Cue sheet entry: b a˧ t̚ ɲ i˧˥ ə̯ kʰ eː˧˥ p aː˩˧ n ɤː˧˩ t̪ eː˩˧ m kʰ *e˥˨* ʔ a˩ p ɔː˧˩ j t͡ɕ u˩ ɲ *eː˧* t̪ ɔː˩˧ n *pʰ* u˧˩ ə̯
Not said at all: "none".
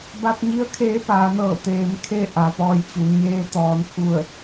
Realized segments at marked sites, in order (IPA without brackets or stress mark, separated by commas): e˥˨, eː˧, pʰ